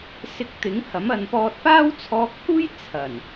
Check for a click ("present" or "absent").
absent